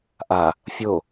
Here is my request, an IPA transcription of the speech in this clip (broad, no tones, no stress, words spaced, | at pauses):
ʔa | fʲo